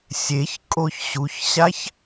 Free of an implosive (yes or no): yes